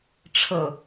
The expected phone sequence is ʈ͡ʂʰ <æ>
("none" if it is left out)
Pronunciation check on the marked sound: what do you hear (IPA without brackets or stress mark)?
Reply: ə